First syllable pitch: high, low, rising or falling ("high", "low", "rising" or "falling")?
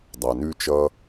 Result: low